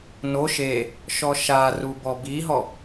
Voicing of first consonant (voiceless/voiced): voiced